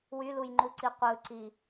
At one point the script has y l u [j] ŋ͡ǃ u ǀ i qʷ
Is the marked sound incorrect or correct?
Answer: correct